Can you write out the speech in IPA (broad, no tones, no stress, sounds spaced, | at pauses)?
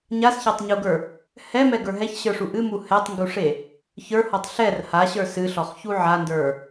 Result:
ɲ a s ç a tˤ ɲ u ɡ ə˞ | h ɛ m ɛ ɡ ə˞ ɦ ɛ ç ɕ ə˞ ʂ u ʔ ɨ m u h ɛ tˤ ŋ ɡ u ʂ e | ç ə˞ h ɔ tˤ ɬ ɛ r h a ɕ ə˞ s ɨ ɬ ɔ χ ç u ʕ a n d ə˞